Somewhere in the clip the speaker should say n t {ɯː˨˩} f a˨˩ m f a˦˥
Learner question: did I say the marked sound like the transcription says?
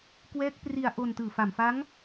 yes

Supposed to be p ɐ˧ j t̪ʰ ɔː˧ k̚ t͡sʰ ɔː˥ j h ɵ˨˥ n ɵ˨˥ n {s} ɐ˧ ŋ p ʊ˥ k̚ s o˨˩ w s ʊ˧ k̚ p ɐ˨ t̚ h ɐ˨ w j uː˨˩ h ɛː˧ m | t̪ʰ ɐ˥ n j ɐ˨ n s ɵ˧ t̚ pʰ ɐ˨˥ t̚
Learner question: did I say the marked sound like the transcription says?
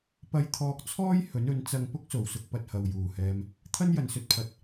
no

